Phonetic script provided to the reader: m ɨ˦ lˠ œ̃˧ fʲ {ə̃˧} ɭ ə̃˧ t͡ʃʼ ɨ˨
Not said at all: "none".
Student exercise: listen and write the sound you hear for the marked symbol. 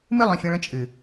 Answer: ə̃˧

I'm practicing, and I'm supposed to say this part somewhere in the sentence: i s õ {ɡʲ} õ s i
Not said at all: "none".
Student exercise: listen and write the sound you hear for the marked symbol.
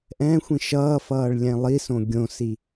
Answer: ɡʲ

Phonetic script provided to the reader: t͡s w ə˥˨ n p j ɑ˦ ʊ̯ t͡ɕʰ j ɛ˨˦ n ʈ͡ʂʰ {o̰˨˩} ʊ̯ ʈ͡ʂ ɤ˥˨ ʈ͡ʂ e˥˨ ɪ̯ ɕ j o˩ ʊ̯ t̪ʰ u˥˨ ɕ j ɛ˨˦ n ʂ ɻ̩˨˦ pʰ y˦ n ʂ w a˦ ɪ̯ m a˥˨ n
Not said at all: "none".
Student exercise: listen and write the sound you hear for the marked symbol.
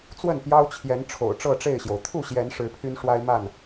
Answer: o̰˨˩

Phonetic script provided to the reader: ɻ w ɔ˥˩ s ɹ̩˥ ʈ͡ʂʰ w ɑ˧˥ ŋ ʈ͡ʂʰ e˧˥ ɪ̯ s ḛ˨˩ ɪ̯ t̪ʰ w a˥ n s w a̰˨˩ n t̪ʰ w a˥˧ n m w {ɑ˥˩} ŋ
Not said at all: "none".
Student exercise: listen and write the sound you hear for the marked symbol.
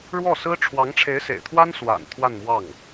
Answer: ɑ˥˩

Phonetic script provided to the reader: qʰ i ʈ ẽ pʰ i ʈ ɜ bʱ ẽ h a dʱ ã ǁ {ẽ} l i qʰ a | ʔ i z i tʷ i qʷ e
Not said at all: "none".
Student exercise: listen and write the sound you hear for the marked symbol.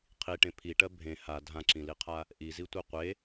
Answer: ĩ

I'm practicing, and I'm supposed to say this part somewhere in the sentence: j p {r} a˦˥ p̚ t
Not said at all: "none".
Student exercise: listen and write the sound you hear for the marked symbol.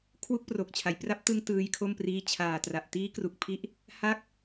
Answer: r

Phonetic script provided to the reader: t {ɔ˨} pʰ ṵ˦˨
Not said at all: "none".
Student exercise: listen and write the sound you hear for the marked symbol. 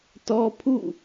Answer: ɔ˦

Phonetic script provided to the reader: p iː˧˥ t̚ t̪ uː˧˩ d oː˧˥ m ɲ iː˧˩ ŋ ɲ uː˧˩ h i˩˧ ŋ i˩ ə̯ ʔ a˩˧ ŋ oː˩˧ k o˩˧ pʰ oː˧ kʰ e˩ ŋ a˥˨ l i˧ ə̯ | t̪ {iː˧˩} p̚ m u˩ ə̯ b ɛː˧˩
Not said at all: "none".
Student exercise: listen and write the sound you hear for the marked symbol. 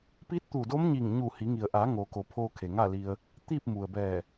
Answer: iː˥˨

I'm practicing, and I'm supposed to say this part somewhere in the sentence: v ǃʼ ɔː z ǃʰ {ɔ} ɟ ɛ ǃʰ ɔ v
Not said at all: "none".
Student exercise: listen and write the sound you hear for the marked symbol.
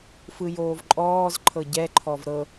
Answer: ɤ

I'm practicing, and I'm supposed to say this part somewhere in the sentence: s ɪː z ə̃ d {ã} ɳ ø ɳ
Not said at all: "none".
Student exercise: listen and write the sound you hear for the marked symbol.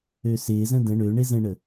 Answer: ə̃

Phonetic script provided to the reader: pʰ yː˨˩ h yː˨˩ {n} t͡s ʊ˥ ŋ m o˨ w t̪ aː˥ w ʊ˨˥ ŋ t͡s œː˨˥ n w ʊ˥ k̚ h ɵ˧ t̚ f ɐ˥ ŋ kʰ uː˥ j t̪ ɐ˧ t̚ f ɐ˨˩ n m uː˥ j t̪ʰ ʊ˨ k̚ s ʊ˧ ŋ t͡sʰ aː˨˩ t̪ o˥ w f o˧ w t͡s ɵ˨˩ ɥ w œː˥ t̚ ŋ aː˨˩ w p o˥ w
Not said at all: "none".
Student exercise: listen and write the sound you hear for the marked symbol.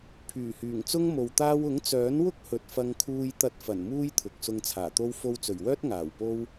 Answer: ŋ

